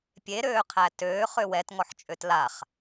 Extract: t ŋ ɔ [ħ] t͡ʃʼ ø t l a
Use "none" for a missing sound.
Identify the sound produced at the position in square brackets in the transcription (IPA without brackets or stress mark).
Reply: ħ